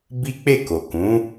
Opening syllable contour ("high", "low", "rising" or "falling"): high